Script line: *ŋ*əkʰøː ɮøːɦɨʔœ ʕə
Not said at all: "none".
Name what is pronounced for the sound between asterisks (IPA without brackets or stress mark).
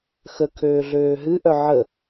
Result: x